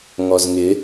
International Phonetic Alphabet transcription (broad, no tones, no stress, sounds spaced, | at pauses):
ŋ ɔ z ŋ ɪ